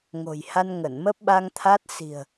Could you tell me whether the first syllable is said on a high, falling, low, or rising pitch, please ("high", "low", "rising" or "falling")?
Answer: low